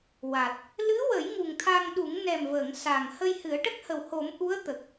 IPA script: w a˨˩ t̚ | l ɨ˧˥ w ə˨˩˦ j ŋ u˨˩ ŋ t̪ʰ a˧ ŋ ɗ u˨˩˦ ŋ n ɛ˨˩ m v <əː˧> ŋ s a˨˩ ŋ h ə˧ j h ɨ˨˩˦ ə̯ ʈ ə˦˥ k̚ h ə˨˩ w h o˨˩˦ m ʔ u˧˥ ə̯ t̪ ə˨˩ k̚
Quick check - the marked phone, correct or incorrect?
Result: incorrect